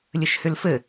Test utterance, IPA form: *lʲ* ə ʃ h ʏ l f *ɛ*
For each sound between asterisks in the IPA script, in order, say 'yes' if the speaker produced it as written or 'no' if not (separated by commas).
yes, no